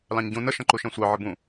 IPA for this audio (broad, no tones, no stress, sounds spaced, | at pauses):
l ɑ̃ ɲ ɟ ũ n ə ʃ ɐ̃ ǃ u ʃ ɛ̃ sʷ ɑ ʕ ə b ũ